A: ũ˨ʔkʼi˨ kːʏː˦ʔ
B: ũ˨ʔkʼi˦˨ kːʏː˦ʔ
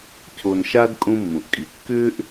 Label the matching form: A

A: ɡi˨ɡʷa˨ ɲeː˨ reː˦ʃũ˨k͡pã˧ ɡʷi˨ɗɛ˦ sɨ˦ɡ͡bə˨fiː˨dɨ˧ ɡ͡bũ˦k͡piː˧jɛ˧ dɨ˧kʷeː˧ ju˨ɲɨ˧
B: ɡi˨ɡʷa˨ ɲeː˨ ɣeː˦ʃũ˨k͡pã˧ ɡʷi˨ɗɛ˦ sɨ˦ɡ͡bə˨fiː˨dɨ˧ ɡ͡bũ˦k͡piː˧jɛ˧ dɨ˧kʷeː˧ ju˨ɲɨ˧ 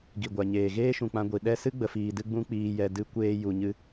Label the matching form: B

